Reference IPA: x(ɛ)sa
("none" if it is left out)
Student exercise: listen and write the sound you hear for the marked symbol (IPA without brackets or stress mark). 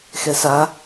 ɛ